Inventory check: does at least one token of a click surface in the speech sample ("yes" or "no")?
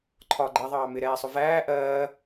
yes